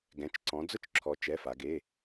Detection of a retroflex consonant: absent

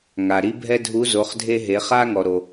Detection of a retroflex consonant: absent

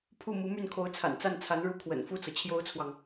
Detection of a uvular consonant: absent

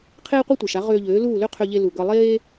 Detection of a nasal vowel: absent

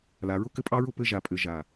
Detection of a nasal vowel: absent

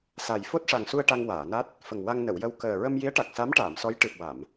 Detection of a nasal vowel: absent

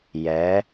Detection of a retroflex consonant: absent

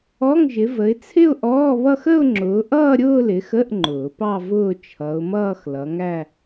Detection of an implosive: absent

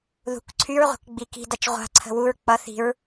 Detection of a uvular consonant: present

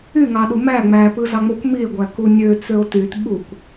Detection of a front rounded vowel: present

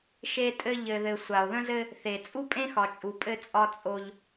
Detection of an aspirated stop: absent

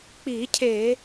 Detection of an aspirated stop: present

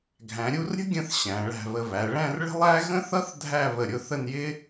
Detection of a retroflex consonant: present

